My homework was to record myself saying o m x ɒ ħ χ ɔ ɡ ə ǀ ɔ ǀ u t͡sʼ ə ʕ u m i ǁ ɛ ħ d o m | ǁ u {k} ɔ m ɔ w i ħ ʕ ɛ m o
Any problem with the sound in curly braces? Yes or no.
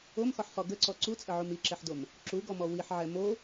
yes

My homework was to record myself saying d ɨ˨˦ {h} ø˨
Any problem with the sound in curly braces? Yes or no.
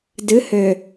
no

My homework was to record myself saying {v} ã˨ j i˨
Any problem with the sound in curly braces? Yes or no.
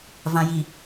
no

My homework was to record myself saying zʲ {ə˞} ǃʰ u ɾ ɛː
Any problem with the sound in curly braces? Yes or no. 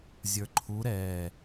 no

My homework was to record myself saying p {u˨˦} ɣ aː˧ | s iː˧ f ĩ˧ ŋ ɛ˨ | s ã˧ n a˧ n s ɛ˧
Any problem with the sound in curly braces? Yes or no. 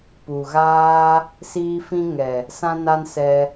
yes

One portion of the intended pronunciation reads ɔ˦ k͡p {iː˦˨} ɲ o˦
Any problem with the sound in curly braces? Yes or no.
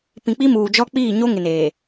no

